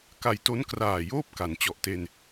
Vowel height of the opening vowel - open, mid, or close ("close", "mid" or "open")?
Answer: open